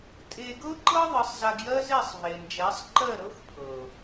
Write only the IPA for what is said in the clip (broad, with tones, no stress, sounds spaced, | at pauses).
tʼ e˧ ɡ ɤ˦ ǃ ɤ˦ ðˤ ɨ˨˦ sˤ z a˧ ɡ j ɜ˦ z e˦˨ sˤ v e˨ n d͡ʒ ɛ˨˦ sˤ ǃ ɜ˦˨ ɾ ɤ˦ x pʰ ɤ˨